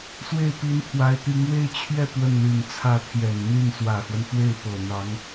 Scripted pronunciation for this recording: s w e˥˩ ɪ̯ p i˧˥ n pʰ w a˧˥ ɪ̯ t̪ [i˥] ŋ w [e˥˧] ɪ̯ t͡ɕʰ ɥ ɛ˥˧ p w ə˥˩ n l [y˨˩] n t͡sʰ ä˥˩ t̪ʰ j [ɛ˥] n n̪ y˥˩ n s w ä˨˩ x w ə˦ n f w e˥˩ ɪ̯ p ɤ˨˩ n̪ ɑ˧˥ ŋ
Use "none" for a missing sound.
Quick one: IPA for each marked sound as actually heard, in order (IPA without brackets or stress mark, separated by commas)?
i˧˥, e˥˧, y˨˩, ɛ˨˩